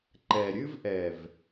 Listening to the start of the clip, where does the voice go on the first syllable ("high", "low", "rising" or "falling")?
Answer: low